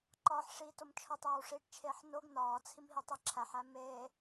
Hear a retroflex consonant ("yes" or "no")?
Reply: yes